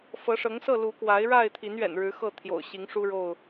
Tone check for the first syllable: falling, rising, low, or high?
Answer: rising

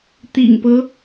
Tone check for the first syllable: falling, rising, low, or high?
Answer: low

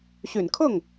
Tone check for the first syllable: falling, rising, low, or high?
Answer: low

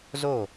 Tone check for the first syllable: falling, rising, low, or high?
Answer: falling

